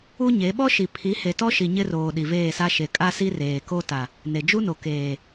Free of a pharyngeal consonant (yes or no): yes